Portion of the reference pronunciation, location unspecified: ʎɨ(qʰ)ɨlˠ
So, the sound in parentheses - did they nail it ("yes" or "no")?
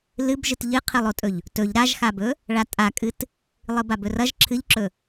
yes